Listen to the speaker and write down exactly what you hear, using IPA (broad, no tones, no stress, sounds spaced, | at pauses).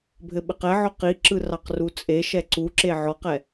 bʱ ɘ ɓ ɘ q ɛ ʕ ɔ q i ǁ ɯ r ɑ q r u t͡sʼ e ʃ ɛ ǀ u ǁ e ʕ ɔ q ɛ